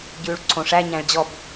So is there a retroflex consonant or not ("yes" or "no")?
yes